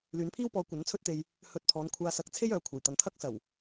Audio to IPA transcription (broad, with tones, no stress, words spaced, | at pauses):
lyː˨˥npʰiː˥wpɔː˨˧ kʷɐ˨˥nt͡sʰɵ˥t̚t̪e˧j | hɵ˧t̚pʰɔː˨˧nkʷʰaː˧ sɐ˨k̚t͡sʰe˥j œː˨˥kʷʰɐ˨˩jt̪ɐ˨n t̪ʰɐ˥k̚sɐ˨˩w